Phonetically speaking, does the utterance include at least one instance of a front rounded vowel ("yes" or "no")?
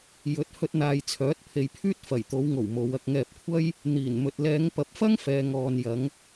yes